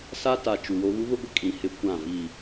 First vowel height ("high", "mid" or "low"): low